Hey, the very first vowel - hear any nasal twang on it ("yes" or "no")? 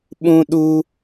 yes